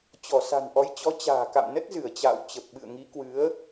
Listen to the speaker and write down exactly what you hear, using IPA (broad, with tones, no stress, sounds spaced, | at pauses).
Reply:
t͡ɕ ɔ˧˩ s a̤˨˩ n ʔ ɔ˨˦ j t͡ɕ ɔ˨˦ t͡ɕ a̤ː˨˩ k a̰˧˨ m n ə˦˥ t̚ z ɨ˧˩ ə̯ t͡ɕ a̰ː˧˨ w t͡ɕ ə˨˩ p̚ ɓ ɨ̰˧˨ ə̯ ŋ i˨˦ k w ɨ˨˦ ə̯